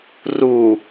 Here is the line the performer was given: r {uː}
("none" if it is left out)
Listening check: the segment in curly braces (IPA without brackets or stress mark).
uː